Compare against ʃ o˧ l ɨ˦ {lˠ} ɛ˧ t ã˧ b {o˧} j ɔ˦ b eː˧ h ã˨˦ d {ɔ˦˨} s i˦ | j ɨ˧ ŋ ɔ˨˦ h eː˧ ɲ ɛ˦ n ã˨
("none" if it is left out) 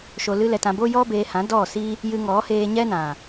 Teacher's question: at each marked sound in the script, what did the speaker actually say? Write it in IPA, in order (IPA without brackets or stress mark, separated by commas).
l, o˦, ɔ˦˨